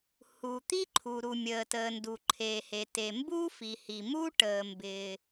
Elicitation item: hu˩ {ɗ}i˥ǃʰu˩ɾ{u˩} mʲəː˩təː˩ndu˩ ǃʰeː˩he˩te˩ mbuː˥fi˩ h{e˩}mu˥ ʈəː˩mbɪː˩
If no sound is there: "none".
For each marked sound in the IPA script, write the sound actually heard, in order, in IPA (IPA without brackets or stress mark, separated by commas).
t̪, u˩, i˩